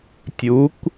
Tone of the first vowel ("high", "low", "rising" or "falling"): rising